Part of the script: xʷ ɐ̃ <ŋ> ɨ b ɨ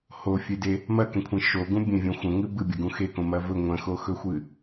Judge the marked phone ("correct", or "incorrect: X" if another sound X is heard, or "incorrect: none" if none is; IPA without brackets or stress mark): correct